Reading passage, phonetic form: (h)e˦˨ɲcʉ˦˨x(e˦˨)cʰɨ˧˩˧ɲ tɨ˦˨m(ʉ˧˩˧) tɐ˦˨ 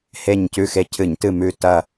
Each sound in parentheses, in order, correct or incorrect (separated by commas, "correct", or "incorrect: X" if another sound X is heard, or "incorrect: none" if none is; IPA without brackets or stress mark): correct, correct, incorrect: ʉ˦˨